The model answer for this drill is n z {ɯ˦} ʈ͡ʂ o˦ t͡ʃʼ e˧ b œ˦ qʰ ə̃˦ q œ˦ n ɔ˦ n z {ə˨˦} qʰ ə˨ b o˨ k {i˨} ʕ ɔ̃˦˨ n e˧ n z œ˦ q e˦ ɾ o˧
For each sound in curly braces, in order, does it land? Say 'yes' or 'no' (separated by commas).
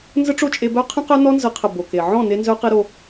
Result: no, yes, no